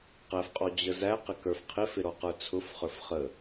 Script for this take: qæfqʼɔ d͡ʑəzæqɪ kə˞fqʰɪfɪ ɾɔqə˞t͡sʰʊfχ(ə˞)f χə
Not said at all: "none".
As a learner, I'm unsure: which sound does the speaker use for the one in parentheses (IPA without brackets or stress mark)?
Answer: ə˞